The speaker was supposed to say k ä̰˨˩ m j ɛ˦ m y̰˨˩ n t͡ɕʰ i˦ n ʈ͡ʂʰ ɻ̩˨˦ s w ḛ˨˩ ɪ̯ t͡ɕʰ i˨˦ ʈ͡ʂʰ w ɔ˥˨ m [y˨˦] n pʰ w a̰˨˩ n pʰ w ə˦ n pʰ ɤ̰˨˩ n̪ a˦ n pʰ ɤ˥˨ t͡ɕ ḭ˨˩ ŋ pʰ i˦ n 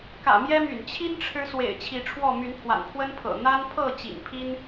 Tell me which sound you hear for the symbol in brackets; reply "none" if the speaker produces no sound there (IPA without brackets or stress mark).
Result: y˨˦